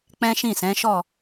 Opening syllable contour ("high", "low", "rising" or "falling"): high